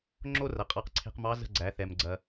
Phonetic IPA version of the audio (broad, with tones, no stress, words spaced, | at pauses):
ŋ͡ǁo˥rɐ˩ qʼɑ˧qǀʰe̤˧qmɑ˧˥ zə̤˧ɡ͡ǀæ˩˧ θɛ˩mɡ͡ǀɐ˩